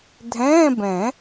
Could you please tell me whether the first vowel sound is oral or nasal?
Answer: nasal